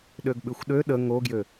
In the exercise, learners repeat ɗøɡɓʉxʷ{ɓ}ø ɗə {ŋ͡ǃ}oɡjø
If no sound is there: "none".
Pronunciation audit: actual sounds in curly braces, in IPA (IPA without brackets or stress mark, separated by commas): ɗ, ŋ